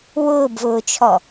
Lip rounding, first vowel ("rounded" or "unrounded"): rounded